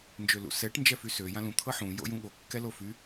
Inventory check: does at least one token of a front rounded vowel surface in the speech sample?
yes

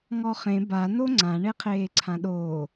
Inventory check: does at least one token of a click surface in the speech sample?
yes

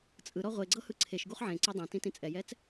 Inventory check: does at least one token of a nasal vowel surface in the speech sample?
yes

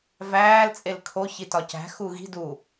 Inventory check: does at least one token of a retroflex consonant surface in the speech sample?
no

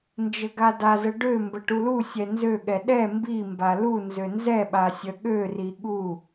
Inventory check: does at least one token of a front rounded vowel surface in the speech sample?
yes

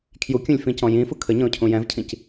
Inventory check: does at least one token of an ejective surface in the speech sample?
no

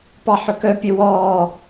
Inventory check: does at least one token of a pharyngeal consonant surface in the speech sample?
yes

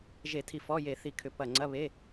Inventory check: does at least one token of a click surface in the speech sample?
yes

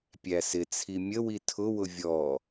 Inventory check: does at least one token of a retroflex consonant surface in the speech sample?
no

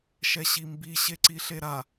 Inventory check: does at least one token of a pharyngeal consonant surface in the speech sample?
no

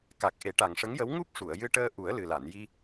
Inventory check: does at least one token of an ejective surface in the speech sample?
no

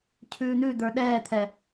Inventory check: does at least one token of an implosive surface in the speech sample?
yes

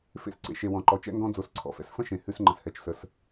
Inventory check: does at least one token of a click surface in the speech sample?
yes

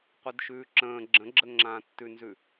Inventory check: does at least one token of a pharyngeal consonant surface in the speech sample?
no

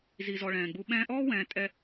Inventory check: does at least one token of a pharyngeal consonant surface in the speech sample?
no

